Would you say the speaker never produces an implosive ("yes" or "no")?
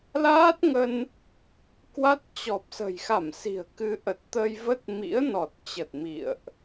yes